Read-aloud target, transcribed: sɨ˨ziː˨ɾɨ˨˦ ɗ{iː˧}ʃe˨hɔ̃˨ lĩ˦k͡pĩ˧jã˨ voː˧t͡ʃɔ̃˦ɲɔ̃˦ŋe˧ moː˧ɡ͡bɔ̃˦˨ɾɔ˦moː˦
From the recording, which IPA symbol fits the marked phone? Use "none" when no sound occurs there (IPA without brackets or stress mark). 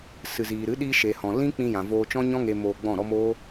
iː˧